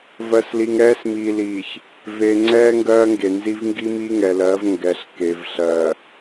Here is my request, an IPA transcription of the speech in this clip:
v ɜ˨ s l i˨ ŋ ɾ ɛː˦ s m iː˨ l iː˨ ç | v e˨ ŋ͡ǀ ɛː˦ ŋ ɡ ɜː˦ ŋ ɡ e˨ n z i˦ v ŋ ɡ i˦ m i˦ ŋ ɛ˨ l ɜ˨˦ v ŋ ɡ ɛ˨ ɬ k e˨ v ɬ ɜ˨

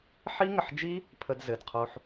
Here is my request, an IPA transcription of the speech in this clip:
ħ i˦ ŋ ə˨ ħ d͡ʒ i˦ | pʰ ə˧ d z ɘ˨ d qʰ o˧ ħ

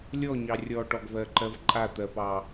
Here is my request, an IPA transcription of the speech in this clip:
lʲ ɔ ɲ ɑ rʲ ɔ ʈ ɔ ɡ v ɜ ǃ ɜ v ǃʼ a t̪ ɜ p ɑ

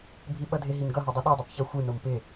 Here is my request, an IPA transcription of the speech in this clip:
bʱ i ɓ ʌ dʱ ɪ ɦ i n ɡ ʌ ɦ o dˤ ʌ ɗ o dˤ o p ç ʌ xʷ ɯ n o m p ɪ

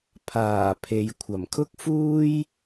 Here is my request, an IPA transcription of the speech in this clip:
pʰ aː˨˩ pʰ e˨ j kʷʰ ɐ˨˩ m kʰ ʊ˥ k̚ f uː˥ j

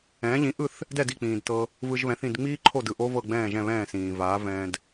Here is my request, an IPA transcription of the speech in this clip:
ɛ̃ː˩˥ ʎ ĩ˩˥ ʔ ɯ˥˩ θ | d ɛ˥˩ d i˥˩ k͡p ĩː˩ d t ɤ˧ | v ɯ˧ ʒ β ɛ̃˩˥ θ ĩ˥˩ d ŋ͡m iː˥ ǃʰ o˥˩ d ɯ˥˩ ʔ o˥ v ɤ˥˩ ɡ͡b ɛ̃ː˥˩ ʒ ɛ̃˥˩ β ɛ̃ː˥˩ s ĩː˩ v aː˩˥ v ɛ̃ː˧ d

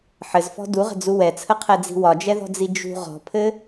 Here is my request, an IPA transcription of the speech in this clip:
ħ ɘ z f ɔ̤ d u ʁ ə̤ d͡z u w ɛ t͡sʰ ə qʰ ɛ d͡z i̤ w ɒ d͡ʒ ɛ ð ɔ̤ d͡z i d͡ʒ ṳ ʁ ɔ̤ pʰ ɘ

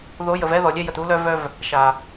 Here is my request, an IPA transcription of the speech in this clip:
ð o˨˦ j ə˨ v ɛ˦ ð ɔ˨ lʲ e˦ j ə˨ t u˦ l œ˦ v œ˦ v | ʃ a˨

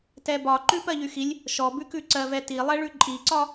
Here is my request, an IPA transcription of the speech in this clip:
t ɛ b ɒ ǃ ʉ p ɜ ʎ y x i lʲ | ʃ ɔ b ʉ k ʉ ǀ ɜ v ɛ t i lˠ ɛ ɭ ʉ ǃʼ i ǀ ɒ

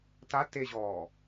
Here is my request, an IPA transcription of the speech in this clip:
t a t e ʑ ɔː

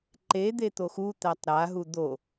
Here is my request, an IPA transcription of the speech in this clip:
ǃ e d̪ e t̪ o x u t̪ æ tˤ ɾ a ɦ u d̪ o

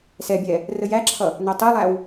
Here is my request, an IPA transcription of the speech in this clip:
s ɛ bʲ ɛ | r ə j æ ǁʰ ʌ | n ɜ tˤ i lˠ æ w

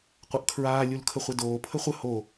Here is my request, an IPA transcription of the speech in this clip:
qʷ ʌ ʔ kʰ ɹ aː lʲ u l kʰ ə χʷ e d oː pʰ ə χʷ ə h o

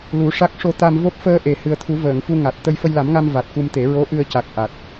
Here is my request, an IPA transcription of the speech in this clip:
l u˨˩˦ ʂ a˦˥ k̚ ʂ o˧ t̪ a˧ m v o˦˥ p̚ f əː˧ ʔ e˨˩ h ɨ˨˩ ə̯ t̪ʰ u˨˩˦ v əː˨˩˨ ŋ f u˧ ŋ a˨˩ t̚ t̪ ə˧ j f ə˧ j l a˨˩˦ m ŋ a˧ m v a˨˩ t̚ k u˧ m t̪ e˨˩˦ ɹ o˧˥ ʔ ɨ˧ ə̯ c a˨˩ k̚ ʔ a˨˩ t̚

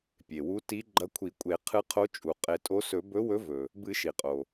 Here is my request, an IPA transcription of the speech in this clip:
pʲ e˩ w u˨˥ t i˨˥ ɡ͡ǃ ɐ˨˥ kʷʰ i˨˩˦ kʷʼ e˨˩˦ qʰ ɨ˨˥ qʰ o˨˥ t͡ʃʼ u˩ qʼ e˨˩˦ tʼ o˨˥ s ɵ˨˩˦ b ɵ˨˥ w ɵ˨˥ v ɵ˩ | b ɨ˨˩˦ ʃ i˩ qʼ o˩

